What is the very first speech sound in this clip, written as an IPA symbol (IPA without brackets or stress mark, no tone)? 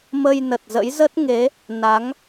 m